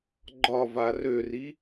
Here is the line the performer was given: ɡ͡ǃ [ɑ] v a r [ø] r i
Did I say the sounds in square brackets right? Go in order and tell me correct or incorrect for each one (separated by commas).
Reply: incorrect, correct